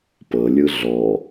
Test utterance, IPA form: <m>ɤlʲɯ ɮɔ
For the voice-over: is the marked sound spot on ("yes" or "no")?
no